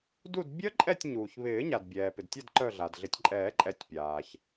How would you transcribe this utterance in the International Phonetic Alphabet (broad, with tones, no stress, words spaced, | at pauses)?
du˦˨d bʲœ˦˥ǃʼɛ˦˨tʲ ɲuː˩çβɪː˨˩˦ɲa˩d bʲɛː˩pɪ˩dtʲa˦˨d ǃœ˦˨ɮa˩dɮɪ˨˩˦tʲ ǃʼɛː˨˩˦ǃʼɛ˨˩˦tʲ pʲaː˩ç